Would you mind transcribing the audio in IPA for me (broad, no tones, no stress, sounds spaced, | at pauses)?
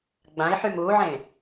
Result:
ɡ͡b ã i̯ ħ y m u ʕ ẽ